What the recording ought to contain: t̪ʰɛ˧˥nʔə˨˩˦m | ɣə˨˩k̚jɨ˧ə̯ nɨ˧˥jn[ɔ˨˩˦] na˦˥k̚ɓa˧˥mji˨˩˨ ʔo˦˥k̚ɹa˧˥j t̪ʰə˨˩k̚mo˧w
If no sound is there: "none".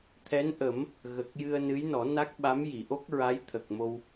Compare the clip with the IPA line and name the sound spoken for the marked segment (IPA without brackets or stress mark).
ɔ˨˩˦